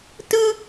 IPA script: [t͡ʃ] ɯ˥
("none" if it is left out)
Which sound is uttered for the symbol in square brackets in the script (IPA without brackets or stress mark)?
t